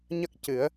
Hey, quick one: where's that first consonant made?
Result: palate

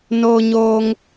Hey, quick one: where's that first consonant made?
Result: tongue tip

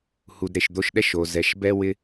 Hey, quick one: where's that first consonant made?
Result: throat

